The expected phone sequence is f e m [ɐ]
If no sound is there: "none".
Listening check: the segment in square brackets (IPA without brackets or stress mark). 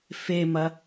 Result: ɐ